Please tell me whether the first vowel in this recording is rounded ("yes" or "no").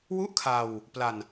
yes